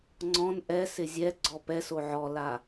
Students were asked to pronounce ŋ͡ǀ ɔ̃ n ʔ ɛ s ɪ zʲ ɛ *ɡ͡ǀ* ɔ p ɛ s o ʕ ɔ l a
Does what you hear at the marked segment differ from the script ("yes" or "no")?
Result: no